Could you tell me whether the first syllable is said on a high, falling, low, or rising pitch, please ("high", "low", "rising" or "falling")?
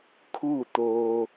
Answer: falling